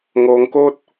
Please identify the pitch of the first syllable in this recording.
low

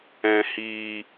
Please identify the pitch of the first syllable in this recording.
low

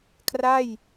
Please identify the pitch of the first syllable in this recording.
falling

